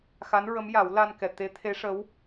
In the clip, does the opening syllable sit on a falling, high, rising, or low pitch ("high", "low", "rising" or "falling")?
rising